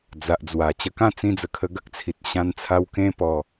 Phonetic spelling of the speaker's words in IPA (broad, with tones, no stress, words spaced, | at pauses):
d͡za˨ʔd͡zwa˨˩ t͡ɕə˧kã˥˧ t͡sĩ˧d͡zə˨˩ kʰə˧ɡə˦k̚t͡sʰi˨t̚ ɕã˧nt͡sʰa˧w kẽ˦pɔ˧